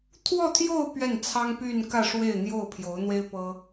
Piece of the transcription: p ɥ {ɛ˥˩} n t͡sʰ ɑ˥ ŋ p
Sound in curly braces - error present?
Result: no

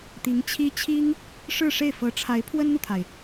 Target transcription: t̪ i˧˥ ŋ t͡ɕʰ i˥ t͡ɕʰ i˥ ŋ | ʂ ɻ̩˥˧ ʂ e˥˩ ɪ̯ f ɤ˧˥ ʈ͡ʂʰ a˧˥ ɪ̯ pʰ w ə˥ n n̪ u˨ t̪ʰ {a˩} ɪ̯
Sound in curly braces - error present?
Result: no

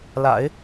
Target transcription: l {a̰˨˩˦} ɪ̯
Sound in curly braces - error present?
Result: no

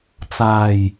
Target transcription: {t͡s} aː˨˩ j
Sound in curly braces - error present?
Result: no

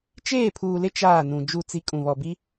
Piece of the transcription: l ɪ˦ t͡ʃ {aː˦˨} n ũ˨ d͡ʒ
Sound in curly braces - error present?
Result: no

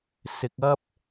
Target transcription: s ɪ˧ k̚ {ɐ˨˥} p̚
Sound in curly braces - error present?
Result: yes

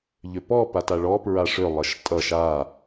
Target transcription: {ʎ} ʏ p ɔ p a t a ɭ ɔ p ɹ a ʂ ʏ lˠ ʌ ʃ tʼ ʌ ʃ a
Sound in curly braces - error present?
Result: no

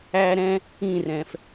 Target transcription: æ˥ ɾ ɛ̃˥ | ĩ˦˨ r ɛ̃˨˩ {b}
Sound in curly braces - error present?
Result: yes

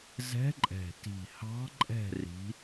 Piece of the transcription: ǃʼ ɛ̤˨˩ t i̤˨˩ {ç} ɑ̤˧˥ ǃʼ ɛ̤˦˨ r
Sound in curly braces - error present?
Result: yes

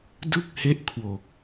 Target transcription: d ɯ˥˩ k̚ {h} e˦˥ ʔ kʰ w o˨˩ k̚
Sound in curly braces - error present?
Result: no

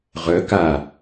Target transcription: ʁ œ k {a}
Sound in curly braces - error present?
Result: no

